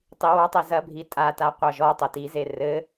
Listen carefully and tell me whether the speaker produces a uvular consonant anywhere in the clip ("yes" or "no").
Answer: yes